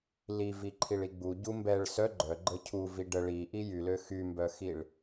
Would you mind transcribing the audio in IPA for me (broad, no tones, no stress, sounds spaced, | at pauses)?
l i v i ǃʰ i ɭ i ɡ͡b u ɟ u m b ɛ ɭ s œ ɡ͡ǃ œ ɡ͡ǃ ə cʰ u v i ɖ ə ɭ i ʔ i j y l ø x y m b œ x i ɭ